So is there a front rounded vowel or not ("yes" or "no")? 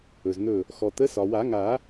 no